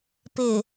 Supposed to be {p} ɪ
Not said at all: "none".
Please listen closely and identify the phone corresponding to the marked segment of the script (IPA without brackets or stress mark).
p